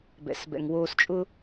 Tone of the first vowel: low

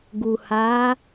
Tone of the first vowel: low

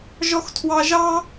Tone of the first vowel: high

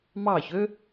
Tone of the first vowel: falling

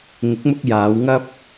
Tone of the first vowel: rising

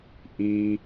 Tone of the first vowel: high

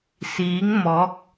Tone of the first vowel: rising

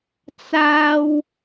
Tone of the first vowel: high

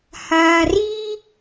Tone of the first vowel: low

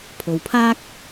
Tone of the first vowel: low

